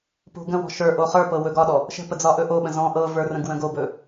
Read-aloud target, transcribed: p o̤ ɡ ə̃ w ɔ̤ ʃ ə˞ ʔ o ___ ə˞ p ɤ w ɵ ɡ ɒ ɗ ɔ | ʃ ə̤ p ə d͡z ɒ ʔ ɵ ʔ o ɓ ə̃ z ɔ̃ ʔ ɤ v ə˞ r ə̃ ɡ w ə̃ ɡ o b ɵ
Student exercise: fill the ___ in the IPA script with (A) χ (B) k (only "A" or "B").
A